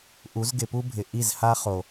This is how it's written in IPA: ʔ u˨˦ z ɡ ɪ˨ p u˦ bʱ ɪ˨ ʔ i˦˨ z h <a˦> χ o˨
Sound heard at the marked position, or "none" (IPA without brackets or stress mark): a˦